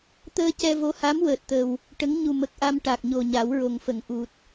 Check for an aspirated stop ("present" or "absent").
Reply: absent